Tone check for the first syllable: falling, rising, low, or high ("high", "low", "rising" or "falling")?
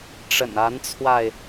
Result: low